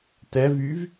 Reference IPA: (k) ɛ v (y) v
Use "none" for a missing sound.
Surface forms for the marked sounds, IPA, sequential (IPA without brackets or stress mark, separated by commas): t, y